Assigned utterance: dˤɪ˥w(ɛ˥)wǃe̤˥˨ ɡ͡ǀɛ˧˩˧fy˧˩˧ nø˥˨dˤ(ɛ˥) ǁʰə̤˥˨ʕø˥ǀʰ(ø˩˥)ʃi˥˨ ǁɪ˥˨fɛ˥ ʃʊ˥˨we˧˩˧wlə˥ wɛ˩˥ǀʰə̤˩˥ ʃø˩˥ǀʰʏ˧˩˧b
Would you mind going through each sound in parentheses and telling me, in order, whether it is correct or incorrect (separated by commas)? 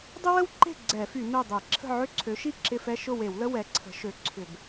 incorrect, incorrect, correct